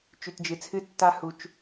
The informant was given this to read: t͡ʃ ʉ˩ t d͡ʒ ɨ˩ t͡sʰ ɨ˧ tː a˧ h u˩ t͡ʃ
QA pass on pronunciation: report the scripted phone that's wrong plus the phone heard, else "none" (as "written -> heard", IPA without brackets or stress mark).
none